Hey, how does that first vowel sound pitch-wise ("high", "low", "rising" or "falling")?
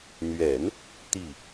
low